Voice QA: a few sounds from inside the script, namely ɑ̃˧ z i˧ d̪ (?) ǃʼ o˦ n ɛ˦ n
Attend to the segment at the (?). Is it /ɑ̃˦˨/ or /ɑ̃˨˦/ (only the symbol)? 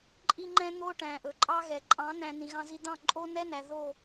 ɑ̃˦˨